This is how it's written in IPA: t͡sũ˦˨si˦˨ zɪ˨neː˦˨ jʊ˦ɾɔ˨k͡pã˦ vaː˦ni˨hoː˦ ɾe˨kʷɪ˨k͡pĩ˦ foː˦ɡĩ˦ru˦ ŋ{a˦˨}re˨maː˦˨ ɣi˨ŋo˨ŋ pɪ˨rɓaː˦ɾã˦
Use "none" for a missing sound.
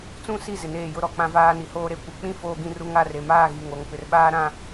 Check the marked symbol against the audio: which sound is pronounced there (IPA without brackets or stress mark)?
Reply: a˦˨